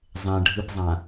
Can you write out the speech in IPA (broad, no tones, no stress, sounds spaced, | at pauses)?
zˤ ẽ ɖʱ ɯ p zˤ ã